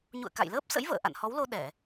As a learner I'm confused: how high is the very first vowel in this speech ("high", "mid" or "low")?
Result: high